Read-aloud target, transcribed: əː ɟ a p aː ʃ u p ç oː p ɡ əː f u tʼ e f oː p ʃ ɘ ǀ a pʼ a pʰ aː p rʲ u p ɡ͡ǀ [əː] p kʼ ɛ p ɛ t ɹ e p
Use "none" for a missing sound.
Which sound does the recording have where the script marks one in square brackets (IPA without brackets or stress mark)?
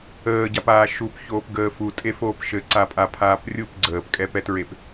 əː